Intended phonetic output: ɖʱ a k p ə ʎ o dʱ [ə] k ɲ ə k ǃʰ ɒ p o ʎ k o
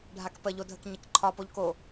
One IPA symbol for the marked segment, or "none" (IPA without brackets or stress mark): ə